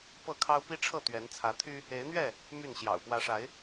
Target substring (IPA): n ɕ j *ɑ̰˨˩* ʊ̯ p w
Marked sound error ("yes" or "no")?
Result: no